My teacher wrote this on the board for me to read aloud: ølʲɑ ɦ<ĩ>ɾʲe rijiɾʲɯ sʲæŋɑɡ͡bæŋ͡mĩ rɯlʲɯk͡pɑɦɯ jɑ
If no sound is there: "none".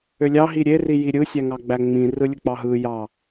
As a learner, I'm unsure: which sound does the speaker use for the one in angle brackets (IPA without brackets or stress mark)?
i